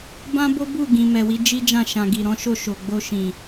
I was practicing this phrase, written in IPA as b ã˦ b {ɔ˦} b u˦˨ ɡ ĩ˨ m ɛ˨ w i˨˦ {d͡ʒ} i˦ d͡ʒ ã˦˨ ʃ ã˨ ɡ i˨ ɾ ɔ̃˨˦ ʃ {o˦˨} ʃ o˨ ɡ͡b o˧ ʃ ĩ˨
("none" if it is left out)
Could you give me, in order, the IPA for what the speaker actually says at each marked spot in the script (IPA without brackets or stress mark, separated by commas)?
o˦, d͡ʒ, o˦˨